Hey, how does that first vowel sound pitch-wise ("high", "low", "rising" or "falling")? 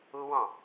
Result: high